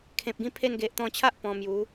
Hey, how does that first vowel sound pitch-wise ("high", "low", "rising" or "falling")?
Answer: low